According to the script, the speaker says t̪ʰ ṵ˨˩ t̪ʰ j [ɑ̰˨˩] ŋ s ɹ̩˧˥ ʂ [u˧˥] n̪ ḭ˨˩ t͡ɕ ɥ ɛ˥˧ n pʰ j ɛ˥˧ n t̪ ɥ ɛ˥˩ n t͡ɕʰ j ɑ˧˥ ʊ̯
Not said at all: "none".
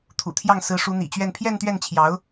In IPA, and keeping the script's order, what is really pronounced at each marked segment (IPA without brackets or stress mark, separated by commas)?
ɑ˥˩, u˧˥